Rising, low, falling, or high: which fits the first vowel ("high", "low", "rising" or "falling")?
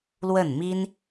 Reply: falling